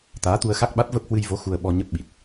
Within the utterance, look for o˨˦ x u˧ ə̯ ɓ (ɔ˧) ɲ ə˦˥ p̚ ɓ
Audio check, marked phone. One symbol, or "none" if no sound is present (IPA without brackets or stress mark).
ɔ˧